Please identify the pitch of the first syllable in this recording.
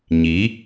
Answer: rising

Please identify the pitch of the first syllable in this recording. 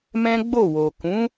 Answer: high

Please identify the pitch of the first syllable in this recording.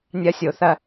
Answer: high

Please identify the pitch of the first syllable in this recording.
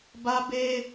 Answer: high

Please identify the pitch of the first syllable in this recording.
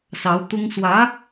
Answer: rising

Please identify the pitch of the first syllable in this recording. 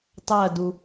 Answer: falling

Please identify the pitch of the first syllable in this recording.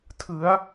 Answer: rising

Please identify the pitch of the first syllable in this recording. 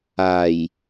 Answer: low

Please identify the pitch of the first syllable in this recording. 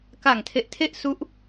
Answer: low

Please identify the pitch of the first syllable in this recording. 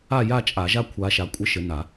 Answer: falling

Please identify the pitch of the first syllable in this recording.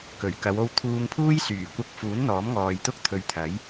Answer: low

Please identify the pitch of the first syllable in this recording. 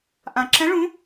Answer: low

